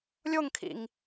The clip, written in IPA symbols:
lʲ o ŋ kʰ ḭ ŋ

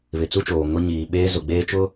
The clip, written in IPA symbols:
β ɪ˨ t͡s u˦ t͡ʃ oː˨ ŋ ʊ˦ ɲ iː˨ ɓ eː˦ z ʊ˨ ɡ͡b eː˦ t͡ʃ ʊ˦

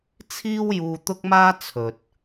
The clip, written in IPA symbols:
t͡sʰ iː˥ w j uː˧ t̪ ʊ˥ k̚ m aː˥ t͡sʰ ɵ˨ t̚

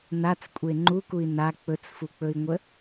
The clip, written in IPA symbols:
n a t͡s kʷʼ e ŋ͡ǃ u k u i̯ n a k͡p ɵ t͡s f u k͡p ɵ i̯ ŋʷ ə

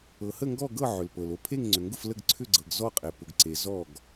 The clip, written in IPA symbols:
ɤ˩ h ə˥˩ ŋ ɡ ɔ˥˩ ɡ ɤ˥˩ ʕ ʏ˩ l p ɤ˩ l o˥˩ pʰ e˥˩ ŋ ŋ͡ǀ ʏ˩ ŋ ɡ ʊ˥˩ f l ə˥˩ ɡ ǀʰ ʏ˥˩ ɡ͡ǀ ɤ˩ ɡ z ɔ˥˩ qʼ e˩ p ʊ˩ ɡ ǀ e˩ z ɔ˥˩ ɡ

